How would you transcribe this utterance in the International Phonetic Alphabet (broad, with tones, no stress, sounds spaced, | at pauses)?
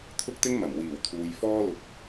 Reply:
t̪ʰ ʊ˥ k̚ t̪ ɪ˥ ŋ m ɐ˨˩ m w iː˨˩ w t̪ʰ uː˨ j f ɔː˥ l ʊ˧ k̚